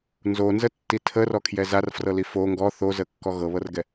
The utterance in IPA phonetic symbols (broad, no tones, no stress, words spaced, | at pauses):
nzonzətːi tʰərɔkʰjɛ zarfrɤli fo ŋɡɔ θozəkːɔ ɣɤβɤrɡɛ